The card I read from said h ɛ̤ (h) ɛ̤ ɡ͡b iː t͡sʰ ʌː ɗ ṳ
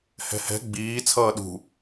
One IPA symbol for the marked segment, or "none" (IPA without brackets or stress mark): h